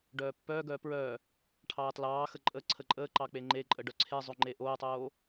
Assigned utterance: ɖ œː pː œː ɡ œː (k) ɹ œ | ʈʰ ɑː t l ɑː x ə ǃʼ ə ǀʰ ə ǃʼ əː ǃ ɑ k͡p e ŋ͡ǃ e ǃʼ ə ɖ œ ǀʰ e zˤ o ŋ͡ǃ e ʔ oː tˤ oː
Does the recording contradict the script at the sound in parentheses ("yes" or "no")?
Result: yes